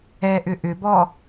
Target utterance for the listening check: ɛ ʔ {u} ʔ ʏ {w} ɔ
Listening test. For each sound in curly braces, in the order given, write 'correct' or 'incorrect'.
incorrect: ʏ, incorrect: b

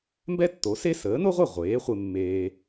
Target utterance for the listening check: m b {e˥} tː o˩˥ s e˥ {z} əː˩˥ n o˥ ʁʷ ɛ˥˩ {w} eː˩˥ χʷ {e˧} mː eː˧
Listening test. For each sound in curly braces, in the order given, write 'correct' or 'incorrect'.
incorrect: ɛ˥, incorrect: s, incorrect: ʁʷ, correct

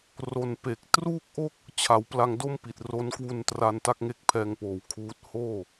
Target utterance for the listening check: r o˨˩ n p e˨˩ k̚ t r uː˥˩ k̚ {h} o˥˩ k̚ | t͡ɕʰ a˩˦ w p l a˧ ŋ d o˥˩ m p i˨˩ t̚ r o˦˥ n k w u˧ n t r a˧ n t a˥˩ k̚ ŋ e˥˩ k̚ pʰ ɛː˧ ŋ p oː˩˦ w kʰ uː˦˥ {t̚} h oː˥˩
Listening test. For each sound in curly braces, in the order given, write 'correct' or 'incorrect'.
incorrect: ʔ, correct

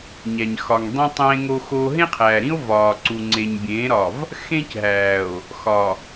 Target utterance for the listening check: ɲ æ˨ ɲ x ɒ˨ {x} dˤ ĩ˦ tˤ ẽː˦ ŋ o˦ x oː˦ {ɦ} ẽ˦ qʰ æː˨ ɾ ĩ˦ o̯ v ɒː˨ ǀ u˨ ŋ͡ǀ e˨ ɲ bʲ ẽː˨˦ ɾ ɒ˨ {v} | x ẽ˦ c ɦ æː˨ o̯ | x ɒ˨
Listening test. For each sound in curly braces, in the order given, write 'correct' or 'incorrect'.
incorrect: ŋ, correct, correct

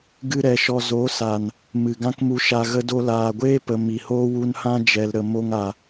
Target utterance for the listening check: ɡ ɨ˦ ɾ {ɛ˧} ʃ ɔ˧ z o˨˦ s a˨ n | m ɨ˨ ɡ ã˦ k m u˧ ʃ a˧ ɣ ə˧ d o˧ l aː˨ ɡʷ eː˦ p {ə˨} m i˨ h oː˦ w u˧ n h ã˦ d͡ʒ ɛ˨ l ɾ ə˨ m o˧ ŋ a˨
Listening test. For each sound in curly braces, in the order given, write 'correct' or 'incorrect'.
correct, correct

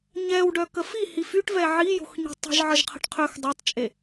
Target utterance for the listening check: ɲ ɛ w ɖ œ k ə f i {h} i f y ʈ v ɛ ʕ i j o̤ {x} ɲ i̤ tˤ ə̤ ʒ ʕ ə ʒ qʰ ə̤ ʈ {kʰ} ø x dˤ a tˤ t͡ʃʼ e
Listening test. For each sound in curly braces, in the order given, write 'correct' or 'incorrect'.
correct, correct, incorrect: qʰ

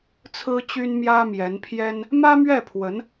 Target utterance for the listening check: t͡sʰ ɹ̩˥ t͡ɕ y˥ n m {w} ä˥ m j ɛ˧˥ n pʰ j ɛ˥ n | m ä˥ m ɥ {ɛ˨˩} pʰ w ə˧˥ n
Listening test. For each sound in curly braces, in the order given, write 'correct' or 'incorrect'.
incorrect: j, incorrect: ɛ˥˩

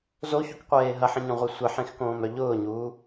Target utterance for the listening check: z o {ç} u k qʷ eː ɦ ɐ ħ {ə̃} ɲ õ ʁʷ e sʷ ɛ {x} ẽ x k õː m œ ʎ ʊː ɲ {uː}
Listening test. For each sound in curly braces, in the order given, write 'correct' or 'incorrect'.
correct, correct, incorrect: ħ, correct

